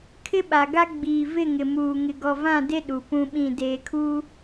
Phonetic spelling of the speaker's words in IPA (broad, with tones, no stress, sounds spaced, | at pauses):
kʰ ɪ˦ ɓ a˨ ɡ a˦ ɡ͡b iː˨ v ɪ˦˨ ŋ ɪ˨ m uː˨ ŋ ɪ˨ ɡ ɔ˨ v ã˦˨ d e˦ ɗ u˨ p ũ˦ ɓ ĩ˦˨ d eː˨ kʰ u˦